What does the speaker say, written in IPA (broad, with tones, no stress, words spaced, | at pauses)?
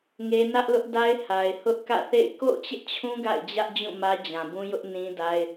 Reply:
ŋe˦ nä˦ʔlʊ˦ʔda˦ɪ̯ ha˨ɪ̯hʊ˦ʔkä̰˦˨θḛ˦˨ɪ̯ ko̰˦˨ʊ̯t͡ɕɪ˦ʔt͡ɕʰũ˦ ɡa̰˦˨ɪ̯d͡ʑä˦ʔd͡ʑũ˦˨ mä˦d͡ʑã˨bũ˦ jʊ˦ʔnĩ˦da˦ɪ̯